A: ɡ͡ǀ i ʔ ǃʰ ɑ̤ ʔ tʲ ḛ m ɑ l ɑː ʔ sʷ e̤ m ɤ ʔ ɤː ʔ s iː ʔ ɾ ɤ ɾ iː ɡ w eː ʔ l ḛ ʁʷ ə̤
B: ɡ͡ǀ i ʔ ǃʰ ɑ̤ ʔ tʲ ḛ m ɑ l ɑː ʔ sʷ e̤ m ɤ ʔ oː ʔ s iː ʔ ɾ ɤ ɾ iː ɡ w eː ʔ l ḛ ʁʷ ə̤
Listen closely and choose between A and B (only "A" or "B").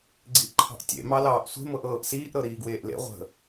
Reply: A